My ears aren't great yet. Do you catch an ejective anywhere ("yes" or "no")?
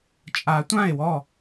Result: yes